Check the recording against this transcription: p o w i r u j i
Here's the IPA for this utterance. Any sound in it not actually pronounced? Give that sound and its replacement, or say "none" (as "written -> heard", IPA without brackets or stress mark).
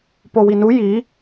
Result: r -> n